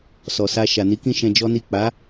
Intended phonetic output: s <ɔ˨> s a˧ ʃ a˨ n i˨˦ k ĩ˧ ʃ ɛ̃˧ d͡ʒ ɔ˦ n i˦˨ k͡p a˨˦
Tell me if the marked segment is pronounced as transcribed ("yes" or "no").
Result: yes